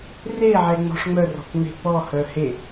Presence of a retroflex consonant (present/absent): present